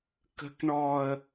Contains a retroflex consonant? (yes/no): yes